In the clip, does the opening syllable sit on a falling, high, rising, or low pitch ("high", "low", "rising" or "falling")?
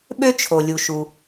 high